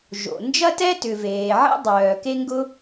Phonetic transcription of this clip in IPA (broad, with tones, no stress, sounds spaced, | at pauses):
ʒ o̰˩ n d͡ʒ ɐ˥ t ɛ˥ t ʏ˩ v eː˩ ʕ ḛ˥ dˤ œː˩ k e˥ ŋ ɡ ʊ˥